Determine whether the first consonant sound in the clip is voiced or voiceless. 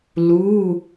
voiced